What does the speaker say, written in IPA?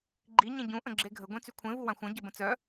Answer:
ɡ͡ǃ i ɲ ẽ ɟ ũ ʔ ə̃ ɡ͡ǁ e ɡʱ ə ɡʷ ẽ t͡s y kʷʰ ẽ v u w ã xʷ œ̃ ɟ ə b ə̃ t͡s œ

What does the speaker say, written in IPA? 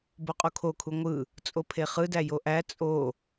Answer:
b o qʼ u kʰ o kʰ u ŋʷ ɯ | t͡sʼ o pʰ e χ ɯ d æ j o ʔ æ t͡sʼ o

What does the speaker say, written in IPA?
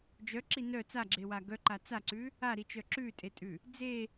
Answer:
d͡ʒ œ ǁ i n œ t͡s a ɡ͡ǁ e w a ɡ œ ǃ a t͡s a ǀ ʉ | a ɾ i t͡ʃ œ ǁ ʉ tʼ e tʼ ʉ | d͡z e

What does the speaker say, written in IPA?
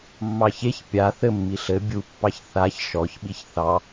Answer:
mː ɑ ç e ç pʲ a θ ɘ mː i ɬ ɘ bʲ u pː ɑ ç θ a ç ʃ ɔ ç ɓ i ç θ ɑ

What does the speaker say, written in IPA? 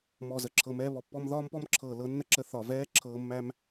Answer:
m ɔ˨ z ə˨ ǁʰ ɤ˨ m ɛː˧ β ɔ˨ pː ɔ˧ m ð ɒː˦ m p ɔ˦ m ǁʰ ɤː˨ l ɤ˨˦ nː ə˧ ǁ ə˧ θ ɒ˨ v ɛː˦ ǁʰ ɤː˧ mː æ˦ m

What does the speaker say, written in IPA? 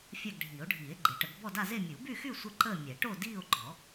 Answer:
fʲ a˥˧ ɡ ɖʱ iː˨˩˦ o̯ ɖʱ iː˨˩˦ e̯ ɡ͡ǃ e˨˩˦ ʈ ə˨˩˦ ɡ b ɔ˥˧ d a˥˧ z e˥˧ mʲ u˨˩˦ b y˥˧ x y˥˧ sʷ ə˥˧ ǃ əː˥˧ mʲ ɛ˨˩˦ ʈ o˥˧ d iː˥˧ o̯ ɡ͡ǃ ɔ˨˩˦

